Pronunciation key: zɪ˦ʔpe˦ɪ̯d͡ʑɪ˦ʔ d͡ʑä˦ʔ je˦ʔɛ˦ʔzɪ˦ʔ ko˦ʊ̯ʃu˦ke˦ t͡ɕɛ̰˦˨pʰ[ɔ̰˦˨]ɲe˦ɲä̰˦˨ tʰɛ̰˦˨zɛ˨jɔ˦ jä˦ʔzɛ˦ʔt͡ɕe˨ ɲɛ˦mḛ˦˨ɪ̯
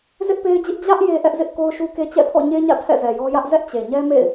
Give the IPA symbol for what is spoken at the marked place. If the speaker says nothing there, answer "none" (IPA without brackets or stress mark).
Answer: ɔ̰˦˨